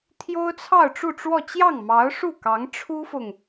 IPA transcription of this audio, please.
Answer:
t̪ʰ j o˥ ʊ̯ t͡sʰ ɑ˥˧ ʊ̯ ʈ͡ʂ u˥˧ ʈ͡ʂ w ɔ˥˧ t͡ɕ j ɑ˥˩ ŋ m ɑ˧˥ ʊ̯ ʂ u˥˩ k ɑ˧˥ ŋ ʈ͡ʂʰ u˥ f ʊ˨ ŋ

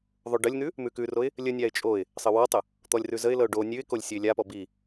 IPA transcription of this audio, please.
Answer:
ðˤ o ɖ ə lʲ n̪ ʉ | m ʉ k ʉ r o ɪ̯ | lʲ ə nʲ a ɪ̯ t͡ʃʼ o ɪ̯ | sˤ ə w ɔ tˤ ə | t̪ ɔ lʲ r ʉ z ə ɪ̯ l ɤ ʊ̯ ɖ o nʲ ʉ ɪ̯ k o lʲ sʲ ɤ ɪ̯ lʲ a p ɔ b i

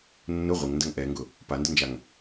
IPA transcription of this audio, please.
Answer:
nː ʊ ʁʷ ɪ ŋ n d ɐ ŋ ʔ ɛ ŋ ɡ ʊ | p a n d ə n d͡ʒ a ŋ

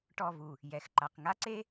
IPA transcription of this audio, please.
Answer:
ʈ ɔ˦˨ v u˨ | j ɛ˨ x ǃ a˨ q ŋ a˦ ǀ e˦

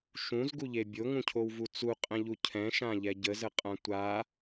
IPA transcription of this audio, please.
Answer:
ʃ ũ z ɡ u ʎ e bʲ o ŋ ũ cʰ o w v u t͡s u qʼ ɛ̃ ʎ u cʰ ɛ̃ ʃ ã ʎ ɛ ɟ ə z ə qʼ ã tʷ a

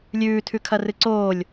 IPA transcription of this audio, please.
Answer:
lʲ ʉː tʰ ʉ kʰ ɐ r ɨ ǀ oː lʲ

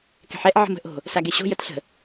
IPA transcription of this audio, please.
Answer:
k ɛ̤ ħ ɛ ʔ ʕ ə̤ m ə̤ ʔ o̤ | s a ɡ e ɕ o̤ j ə t ɬ ə̤

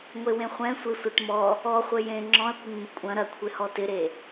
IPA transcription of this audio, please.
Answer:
ŋʷ e w ẽ χʷ ɛ̃ sʷ e sʷ ɛ ʈ m ɔ | ɔ χʷ ɘ j ẽ ŋ͡ǁ ɔ̃ ɐ̯ kʷ ɪ ŋ m ɪ kʷʼ ɐ̃ ɾ ɐ kʷʰ ɪ h ɔ t ɪ ɾ e

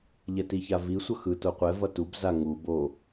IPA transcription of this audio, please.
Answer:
ʎ ɛ t i ç a v i sʷ ʌ x ɯ t o qʷ ɛ v ʌ t u b z a ŋ u b o

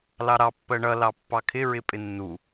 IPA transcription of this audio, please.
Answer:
l ɑ ɾ ɑ pː ɜ ɳ ʌ l ɑ pː ɑ kʰ ɪ ɹ ɪ pʼ ɪ nː u

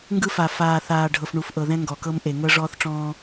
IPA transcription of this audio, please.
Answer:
ŋ ɡ ɯ˦ f a˨ f aː˨ θ aː˨ ɖʱ ɤ˨ f ɳ u˨ f ʔ ɤ˨ ð ɛ̃˦ ŋ ɡ ɔ˨ k ɤ˦ m ʔ e˨ ŋ ɤ˦ ʐ ɔː˦ θ ʈ͡ʂ ɔ̃ː˦

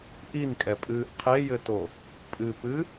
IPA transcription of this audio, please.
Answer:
ʔ i n kʼ ɛ pʼ ɨː ʔ qʰ e j ɘ t o | pʼ ɨ p ɨ

